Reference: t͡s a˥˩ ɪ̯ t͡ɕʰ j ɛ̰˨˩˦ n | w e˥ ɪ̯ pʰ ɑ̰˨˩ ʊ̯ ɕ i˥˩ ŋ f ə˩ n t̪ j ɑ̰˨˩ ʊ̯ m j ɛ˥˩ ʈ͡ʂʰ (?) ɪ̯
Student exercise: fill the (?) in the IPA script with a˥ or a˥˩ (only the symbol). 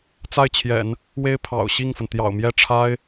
a˥